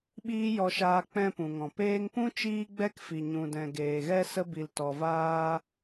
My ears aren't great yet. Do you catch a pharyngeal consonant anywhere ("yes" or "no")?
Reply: no